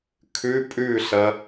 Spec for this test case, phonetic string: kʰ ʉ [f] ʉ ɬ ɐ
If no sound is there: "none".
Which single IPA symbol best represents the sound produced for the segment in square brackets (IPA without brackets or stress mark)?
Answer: pʼ